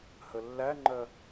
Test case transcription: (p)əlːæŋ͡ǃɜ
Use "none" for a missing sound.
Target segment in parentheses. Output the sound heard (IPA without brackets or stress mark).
h